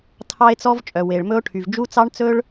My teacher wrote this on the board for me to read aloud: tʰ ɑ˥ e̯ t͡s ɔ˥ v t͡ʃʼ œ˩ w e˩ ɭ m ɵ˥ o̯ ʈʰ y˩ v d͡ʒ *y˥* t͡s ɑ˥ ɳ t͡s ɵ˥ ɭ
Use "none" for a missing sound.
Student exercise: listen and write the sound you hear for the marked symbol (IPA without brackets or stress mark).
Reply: u˥